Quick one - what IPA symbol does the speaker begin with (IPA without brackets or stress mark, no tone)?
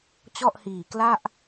t͡ɕ